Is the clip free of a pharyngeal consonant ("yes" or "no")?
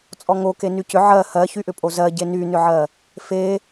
no